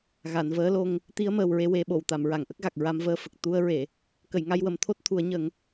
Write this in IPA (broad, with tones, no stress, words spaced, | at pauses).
ɣa˨˩˨nvəː˧˥lo˧ŋ | t̪i˧˥ə̯ məː˨˩wɹe˧we˨˩˦ɓo˨˩˨w t̪a˨˩˨mɹa˨˩˨ŋʔə˦˥k̚ɣa˨˩k̚ ɹa˧mvəː˧fə˨˩k̚ t̪u˧ə̯ ɹe˨˩˨ | kə˨˩˨jŋa˧jwə˨˩˨m t̪ʰo˦˥t̚t̪ʰu˨˩˦ə̯ɲə˨˩˦ŋ